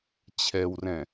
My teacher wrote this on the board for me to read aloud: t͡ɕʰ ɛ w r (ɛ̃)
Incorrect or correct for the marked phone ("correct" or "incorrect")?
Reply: correct